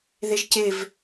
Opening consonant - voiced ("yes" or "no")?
yes